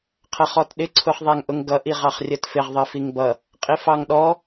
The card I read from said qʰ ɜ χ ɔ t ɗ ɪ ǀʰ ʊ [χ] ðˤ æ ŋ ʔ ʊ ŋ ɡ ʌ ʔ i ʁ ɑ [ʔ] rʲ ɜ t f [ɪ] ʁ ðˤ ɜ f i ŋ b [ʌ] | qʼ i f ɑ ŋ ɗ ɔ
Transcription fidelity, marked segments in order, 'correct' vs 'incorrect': correct, incorrect: χ, correct, correct

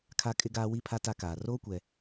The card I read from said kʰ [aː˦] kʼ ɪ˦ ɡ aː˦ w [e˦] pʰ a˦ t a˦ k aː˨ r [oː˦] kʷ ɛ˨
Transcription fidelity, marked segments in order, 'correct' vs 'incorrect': incorrect: a˦, incorrect: i˦, correct

